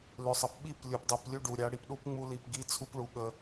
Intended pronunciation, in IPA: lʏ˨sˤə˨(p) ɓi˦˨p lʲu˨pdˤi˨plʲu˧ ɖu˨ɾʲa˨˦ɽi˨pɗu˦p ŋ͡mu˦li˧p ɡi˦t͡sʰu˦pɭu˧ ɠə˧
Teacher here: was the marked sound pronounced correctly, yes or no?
yes